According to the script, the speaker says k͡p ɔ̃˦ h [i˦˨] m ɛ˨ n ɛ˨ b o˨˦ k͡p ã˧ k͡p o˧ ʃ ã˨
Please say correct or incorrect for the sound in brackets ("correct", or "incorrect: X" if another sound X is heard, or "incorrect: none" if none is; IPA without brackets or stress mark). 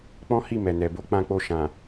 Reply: correct